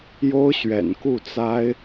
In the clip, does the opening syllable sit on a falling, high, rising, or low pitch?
high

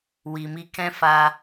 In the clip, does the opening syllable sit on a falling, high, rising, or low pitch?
low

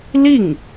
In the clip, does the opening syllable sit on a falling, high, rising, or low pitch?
falling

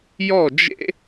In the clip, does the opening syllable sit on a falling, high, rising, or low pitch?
falling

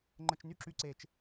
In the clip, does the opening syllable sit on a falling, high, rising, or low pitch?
high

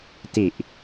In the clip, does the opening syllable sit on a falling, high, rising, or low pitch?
low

